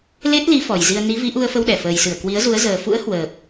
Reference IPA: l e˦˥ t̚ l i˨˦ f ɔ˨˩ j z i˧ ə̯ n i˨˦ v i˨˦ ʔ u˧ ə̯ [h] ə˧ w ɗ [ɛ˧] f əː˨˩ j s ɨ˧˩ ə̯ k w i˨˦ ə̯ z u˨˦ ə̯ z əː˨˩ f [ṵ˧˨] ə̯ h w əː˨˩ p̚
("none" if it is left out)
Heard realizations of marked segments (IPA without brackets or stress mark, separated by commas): f, ɛ˧˩, ṵ˧˥